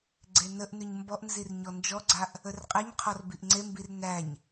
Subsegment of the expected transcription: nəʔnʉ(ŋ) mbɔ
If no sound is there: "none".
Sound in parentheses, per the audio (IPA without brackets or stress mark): ɲ